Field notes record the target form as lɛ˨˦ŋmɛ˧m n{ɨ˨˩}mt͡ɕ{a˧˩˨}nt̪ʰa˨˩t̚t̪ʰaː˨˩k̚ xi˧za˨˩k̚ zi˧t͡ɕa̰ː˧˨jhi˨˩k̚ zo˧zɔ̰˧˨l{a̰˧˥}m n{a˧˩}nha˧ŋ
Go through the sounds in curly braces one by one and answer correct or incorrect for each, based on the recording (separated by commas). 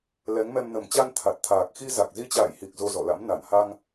incorrect, incorrect, correct, correct